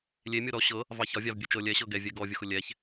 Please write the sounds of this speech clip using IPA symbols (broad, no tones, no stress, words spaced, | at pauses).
lʲe mʲɤɾɔ ɕɤ | vɑçɒvʲɑv bʲet͡ʃɤ lʲɛ ɕɤɡɛvʲɛ ɡɔvʲʊxʊ lʲɛç